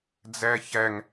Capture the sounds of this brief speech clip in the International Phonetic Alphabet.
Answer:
d͡z æ ç æ ŋ

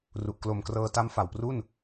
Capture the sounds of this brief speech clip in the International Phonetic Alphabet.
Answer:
r u˨˩ ʔ k l o˨˩ m k r ɤː˧ t a˦˥ m f a˨˩ w p r u˥˩ n

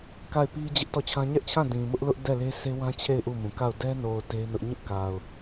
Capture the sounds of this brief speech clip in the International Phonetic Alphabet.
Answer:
k a˦˨ ɪ̯ p i˦ d͡ʑ ɪ˦ ʔ t ɔ˦˨ t͡ɕʰ ã˦ ɲ ɛ˦ ʔ t͡ɕʰ ã˦˨ d ĩ˨ m ʊ˦ ʔ l ʊ˦ ʔ d ɛ˦˨ l e˦ s e˦ w ã˦ t͡ɕʰ e˦˨ ɪ̯ ʔ u˦˨ m ũ˨ k a˦˨ ʊ̯ d ɛ˦ n o˨ ʊ̯ t e˦ ɪ̯ n ʊ˦ ʔ ɲ ʊ˦ ʔ k a˨ ʊ̯

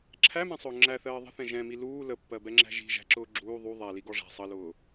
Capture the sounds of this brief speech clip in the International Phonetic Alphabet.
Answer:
ǁʰ æ m ɛ̃ sˤ ʊː ŋ͡ǁ æ θ ɜː ðˤ ə̤ θ ɛ̃ ʒ ɛ̃ m i l uː l ə pː ɜ b ɛ ŋ͡ǁ æ̤ ʒ i̤ ʒ æ̤ ǁ ʊː ɡ͡ǁ uː ðˤ u ðˤ æ l i ɡ ɔ ʐ æ̤ sˤ ʌ l ʊː

